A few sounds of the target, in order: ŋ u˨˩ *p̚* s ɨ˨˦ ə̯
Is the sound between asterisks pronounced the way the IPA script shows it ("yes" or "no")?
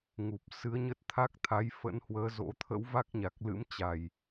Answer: yes